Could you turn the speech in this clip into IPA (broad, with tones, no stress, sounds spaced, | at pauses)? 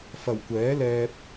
f ɐ˨˩ w kʷ ɛː˨˥ l ɛː˧ p̚